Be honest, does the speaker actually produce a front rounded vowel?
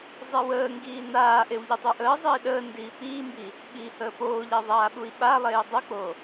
no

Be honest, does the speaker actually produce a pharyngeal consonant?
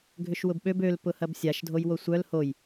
no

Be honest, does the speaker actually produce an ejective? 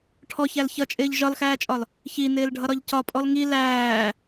yes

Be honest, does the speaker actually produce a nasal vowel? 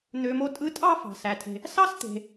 no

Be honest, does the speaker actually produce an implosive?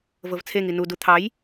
no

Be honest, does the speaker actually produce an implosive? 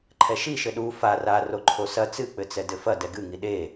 yes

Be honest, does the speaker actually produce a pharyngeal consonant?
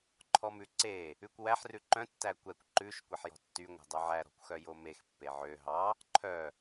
yes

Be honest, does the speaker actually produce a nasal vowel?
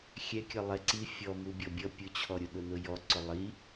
no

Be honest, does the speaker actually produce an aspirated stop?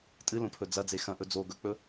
yes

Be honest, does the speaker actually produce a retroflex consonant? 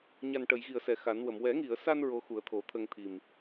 yes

